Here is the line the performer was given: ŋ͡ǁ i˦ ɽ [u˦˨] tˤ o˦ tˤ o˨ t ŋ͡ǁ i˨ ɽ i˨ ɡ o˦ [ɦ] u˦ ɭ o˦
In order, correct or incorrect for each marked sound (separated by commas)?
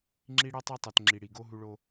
incorrect, correct